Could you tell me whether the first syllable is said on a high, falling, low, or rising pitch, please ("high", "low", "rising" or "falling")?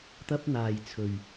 high